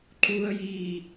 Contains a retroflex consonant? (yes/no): no